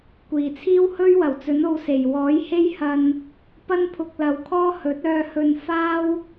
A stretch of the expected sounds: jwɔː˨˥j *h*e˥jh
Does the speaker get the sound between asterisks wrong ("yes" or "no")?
no